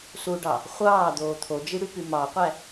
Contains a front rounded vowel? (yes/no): yes